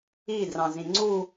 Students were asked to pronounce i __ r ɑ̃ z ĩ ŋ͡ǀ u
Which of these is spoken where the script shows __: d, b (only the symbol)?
d